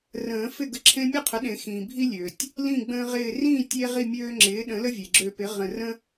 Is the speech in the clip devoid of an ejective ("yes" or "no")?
yes